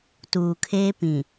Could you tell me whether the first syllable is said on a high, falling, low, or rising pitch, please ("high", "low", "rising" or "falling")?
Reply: low